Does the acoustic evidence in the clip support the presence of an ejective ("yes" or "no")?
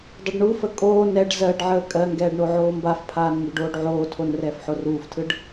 yes